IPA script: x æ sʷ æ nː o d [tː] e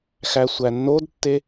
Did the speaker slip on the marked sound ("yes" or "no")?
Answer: no